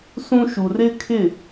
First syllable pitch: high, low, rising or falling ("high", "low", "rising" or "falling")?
high